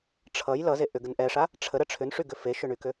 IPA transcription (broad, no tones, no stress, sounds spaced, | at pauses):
ʈ͡ʂʰ ʌ j l ʌ z e ʔ ʏ ɡ ə n ʔ ɛ ʂ a | ʈ͡ʂʰ ə ɾ ə ʈ͡ʂʰ ʏ n ʂ y ɡ ʏ f e ʃ ʏ ɳ y k ʏ